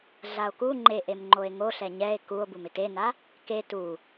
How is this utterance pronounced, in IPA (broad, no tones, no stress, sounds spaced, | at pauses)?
ɮ a o̯ k u ŋ͡ǃ e ʔ e m ŋ͡ǃ o e̯ ŋ o ɬ ɛ ɲ ɛ e̯ k u o̯ b u m ɪ t e n a | k e t u